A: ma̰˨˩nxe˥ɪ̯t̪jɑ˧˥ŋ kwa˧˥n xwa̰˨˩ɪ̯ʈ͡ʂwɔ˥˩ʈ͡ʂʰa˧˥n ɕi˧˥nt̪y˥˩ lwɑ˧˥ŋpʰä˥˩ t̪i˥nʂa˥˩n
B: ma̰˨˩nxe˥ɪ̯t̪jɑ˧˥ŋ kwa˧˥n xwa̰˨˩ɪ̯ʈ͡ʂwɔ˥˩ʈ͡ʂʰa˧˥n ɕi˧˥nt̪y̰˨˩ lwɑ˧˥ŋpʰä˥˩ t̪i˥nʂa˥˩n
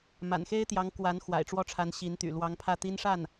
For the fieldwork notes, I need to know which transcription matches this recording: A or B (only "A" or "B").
B